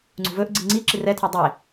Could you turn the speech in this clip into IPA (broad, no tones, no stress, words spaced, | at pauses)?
ŋ͡ǀṳvɵʔɡ͡ǀi ŋ͡ǀi ǁirɛtʰɛ dˤe